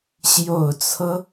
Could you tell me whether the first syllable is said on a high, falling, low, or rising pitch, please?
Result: low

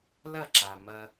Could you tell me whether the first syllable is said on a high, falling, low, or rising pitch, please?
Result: falling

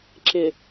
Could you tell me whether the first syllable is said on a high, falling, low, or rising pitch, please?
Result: low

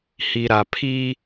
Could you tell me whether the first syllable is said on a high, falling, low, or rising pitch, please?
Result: low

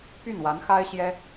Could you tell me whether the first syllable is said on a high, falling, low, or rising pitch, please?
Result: falling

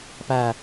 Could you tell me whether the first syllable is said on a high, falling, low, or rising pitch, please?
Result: falling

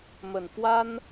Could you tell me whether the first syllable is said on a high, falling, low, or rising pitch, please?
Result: low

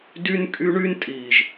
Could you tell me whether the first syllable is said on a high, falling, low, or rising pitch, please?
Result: high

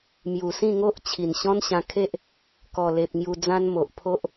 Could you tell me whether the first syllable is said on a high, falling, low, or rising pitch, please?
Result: low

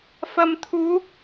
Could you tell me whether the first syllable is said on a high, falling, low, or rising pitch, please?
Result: low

